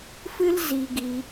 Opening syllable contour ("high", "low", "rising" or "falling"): high